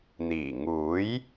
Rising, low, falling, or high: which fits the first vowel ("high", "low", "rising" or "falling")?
low